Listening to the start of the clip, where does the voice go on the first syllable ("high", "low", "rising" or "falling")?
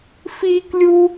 high